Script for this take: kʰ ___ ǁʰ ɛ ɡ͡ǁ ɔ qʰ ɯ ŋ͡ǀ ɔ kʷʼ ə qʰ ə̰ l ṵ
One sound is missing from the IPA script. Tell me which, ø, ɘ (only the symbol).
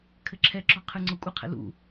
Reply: ɘ